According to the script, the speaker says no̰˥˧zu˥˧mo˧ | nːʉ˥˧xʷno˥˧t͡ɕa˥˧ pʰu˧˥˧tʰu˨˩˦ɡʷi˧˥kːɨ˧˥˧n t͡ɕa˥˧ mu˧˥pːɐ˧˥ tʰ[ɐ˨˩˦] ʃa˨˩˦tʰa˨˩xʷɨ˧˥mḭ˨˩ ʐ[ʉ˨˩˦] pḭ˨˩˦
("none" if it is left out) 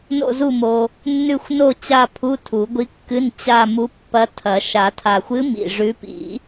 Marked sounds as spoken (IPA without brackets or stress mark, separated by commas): ɐ˨˩˦, ʉ˧˥